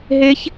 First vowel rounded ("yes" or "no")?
no